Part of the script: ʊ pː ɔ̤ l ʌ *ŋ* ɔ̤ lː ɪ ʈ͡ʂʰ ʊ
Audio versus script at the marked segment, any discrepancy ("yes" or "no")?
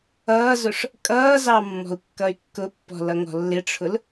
no